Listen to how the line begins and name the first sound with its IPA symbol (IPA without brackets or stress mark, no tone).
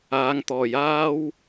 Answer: aː